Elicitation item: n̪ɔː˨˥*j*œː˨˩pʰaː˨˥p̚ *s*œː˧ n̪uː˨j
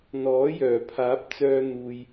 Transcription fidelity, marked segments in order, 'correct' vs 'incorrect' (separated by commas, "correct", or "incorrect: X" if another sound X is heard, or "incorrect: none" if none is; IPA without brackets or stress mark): correct, incorrect: t͡s